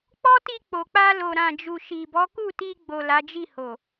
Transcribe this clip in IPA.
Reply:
k͡pɔ˦ti˧ k͡po˨k͡pa˧ lo˨ɾã˨d͡ʒu˨ ʃi˨bɔ˨˦ ku˦˨ti˧ɡ͡bo˨ la˨˦d͡ʒi˦˨ho˨

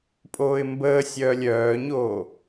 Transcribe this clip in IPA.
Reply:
pʼoːɪ̯mbəːsʲœːlʲ œːɲoː

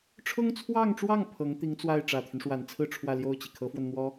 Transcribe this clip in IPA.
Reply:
ʈ͡ʂʰʊ˥ŋt͡sʰwɑ˥˧ŋʈ͡ʂwɑ˥˩ŋ pʰɤ˧˥ŋ t̪i˧˥ŋt͡swa˥˩ɪ̯ ʈ͡ʂä˨˩t̪ʰy˦nʂwa˨˩nt͡sʰɹ̩˥˧ ʈ͡ʂʰwä˥˧ljo˥˩ʊ̯t͡ɕi˩ kʰɤ˧˥fwə˧n n̪wɔ˥

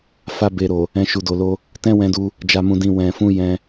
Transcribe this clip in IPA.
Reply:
fa˧be˨ɾo˨ | ɛ̃˧ʃu˨do˨lo˧ | tɛ̃˦ wɛ̃˧du˧ | d͡ʒa˧mũ˧dĩ˧ wɛ̃˨fũ˧ jɛ̃˧

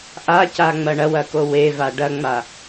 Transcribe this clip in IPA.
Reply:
ʔacaŋ͡mɐ ɳɐwɐko weva ɖɐŋ͡ma

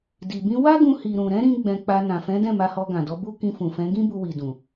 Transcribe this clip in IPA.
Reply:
di˨bĩ˧ wa˦ɡũ˧hi˨ɾũ˨ ɾɛ̃˨˦ɾĩ˧ ɡ͡bɛ̃˧k͡pa˧ nã˨fɛ̃˨˦dɛ̃˦˨ ma˧hɔ˧ɡã˨dɔ˨˦ bu˦ kĩ˧fũ˨fɛ̃˨˦ ɡĩ˦bu˧wi˨dũ˨

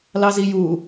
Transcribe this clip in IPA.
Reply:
lɑziju

